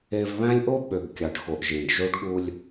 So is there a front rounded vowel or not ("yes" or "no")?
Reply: yes